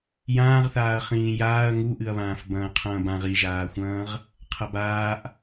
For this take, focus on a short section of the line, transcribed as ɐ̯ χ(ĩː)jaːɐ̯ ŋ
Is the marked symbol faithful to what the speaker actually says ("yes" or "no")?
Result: yes